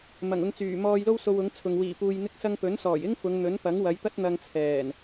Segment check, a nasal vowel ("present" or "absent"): absent